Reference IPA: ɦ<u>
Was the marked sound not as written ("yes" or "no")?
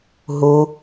no